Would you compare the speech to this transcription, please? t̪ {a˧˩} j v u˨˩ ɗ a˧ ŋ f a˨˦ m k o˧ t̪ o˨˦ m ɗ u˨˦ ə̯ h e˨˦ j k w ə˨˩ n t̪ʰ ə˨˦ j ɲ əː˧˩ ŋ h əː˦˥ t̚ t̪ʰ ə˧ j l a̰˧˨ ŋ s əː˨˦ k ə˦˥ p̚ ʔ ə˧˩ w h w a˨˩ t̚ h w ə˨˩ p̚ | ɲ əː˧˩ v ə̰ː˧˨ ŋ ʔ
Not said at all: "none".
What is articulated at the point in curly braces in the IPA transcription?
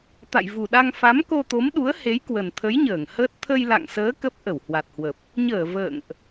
a̰˧˨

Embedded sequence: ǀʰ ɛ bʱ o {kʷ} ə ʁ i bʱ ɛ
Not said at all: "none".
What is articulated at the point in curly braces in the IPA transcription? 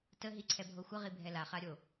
xʷ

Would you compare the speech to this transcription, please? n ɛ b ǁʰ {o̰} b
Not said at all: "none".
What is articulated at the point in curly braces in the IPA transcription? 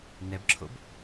o̰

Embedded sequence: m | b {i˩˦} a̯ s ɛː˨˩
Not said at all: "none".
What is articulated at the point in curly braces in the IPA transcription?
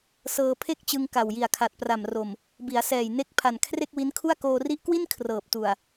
i˩˦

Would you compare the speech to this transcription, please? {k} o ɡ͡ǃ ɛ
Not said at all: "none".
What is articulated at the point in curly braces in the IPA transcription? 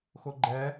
x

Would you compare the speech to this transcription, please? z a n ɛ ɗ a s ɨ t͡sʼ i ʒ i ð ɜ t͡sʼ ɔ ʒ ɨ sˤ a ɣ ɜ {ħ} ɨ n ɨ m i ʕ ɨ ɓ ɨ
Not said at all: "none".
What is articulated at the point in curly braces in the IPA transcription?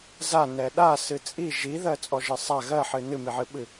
ħ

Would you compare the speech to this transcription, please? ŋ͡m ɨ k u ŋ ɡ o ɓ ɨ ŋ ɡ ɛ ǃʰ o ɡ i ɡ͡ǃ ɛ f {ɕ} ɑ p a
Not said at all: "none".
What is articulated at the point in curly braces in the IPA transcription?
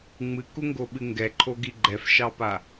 ʃ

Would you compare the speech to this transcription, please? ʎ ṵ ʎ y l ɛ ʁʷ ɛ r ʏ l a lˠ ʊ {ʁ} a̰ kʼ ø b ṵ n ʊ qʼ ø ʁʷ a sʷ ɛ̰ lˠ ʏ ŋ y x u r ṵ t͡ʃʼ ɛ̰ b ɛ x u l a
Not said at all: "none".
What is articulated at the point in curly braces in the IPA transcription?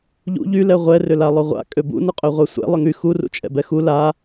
ʁʷ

